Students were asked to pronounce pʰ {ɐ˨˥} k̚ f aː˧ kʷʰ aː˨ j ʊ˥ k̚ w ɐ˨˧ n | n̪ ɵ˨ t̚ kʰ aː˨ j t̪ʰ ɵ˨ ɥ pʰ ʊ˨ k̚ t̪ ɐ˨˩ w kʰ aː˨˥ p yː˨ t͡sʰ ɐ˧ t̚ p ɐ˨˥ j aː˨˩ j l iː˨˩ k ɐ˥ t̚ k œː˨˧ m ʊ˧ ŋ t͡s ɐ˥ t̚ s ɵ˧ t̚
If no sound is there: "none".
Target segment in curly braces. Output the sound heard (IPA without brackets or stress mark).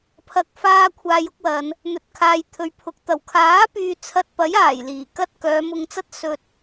ɐ˨˥